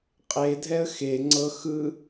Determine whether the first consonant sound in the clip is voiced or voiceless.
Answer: voiceless